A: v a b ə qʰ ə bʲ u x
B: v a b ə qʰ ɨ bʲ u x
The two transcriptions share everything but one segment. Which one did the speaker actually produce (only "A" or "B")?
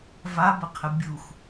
A